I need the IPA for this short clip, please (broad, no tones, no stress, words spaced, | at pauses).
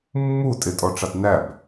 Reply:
mːu tʼɪtʼɔʈ͡ʂɑt næb